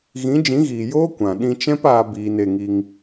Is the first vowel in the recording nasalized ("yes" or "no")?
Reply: yes